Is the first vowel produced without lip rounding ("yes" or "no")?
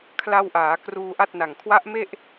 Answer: yes